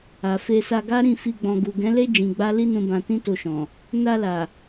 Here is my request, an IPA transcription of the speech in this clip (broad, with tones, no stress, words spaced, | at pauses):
a˨fe˧ sa˧ɡa˦ ɾĩ˦˨fi˧ ɡ͡bɔ̃˨ɡu˨ɡɛ̃˨˦le˦ d͡ʒĩ˧ɡ͡ba˦ li˦nũ˧bã˧ tĩ˦to˧ʃɔ̃˨ | na˧la˨